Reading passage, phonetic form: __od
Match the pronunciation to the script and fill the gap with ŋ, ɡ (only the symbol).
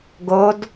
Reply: ɡ